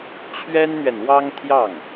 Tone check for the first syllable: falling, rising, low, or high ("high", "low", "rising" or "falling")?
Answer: high